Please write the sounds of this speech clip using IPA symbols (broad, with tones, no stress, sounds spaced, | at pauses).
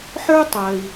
ħ ə˞˥ tˤ ɜ˩ i̯